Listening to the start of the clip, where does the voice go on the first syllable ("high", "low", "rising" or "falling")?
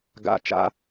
falling